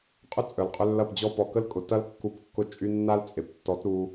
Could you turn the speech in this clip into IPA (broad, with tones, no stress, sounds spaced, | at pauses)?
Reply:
qʼ ʏ˦ t͡sʼ œ˨ l qʼ ʏ˧ lː ɐ˦˨ p d͡ʑ ɔ˦ p ɔ˨ k ə˦ l kʼ ʊ˨ t ɐ˦ l kː u˧ p kː ʊ˧ t͡ʃʼ y˧ nː a˦ l t͡sʼ e˨ p tː ɔ˨˦ t ɾ u˧